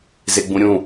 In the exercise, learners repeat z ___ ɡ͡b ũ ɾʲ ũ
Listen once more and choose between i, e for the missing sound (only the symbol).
e